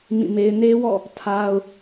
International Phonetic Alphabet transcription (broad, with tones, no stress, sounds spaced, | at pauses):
m ĩ˦˨ m e˦ ɪ̯ n e˦ w ɔ̰˦˨ | tʰ a˦ ʊ̯